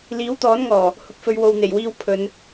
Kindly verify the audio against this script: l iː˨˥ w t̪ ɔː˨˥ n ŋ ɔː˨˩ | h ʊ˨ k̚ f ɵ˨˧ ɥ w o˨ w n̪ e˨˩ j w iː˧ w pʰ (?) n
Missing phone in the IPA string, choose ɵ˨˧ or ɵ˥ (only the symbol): ɵ˨˧